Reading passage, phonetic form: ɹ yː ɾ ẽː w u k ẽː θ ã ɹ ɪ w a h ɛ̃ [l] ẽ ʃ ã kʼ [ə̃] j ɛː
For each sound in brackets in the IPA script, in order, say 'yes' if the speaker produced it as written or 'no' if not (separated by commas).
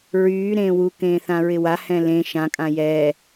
yes, no